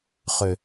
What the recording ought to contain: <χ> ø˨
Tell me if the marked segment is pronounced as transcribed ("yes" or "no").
yes